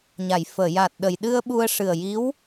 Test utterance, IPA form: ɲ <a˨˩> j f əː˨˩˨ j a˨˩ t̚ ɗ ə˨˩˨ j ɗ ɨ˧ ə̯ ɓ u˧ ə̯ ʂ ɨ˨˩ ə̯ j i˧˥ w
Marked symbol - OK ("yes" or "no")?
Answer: no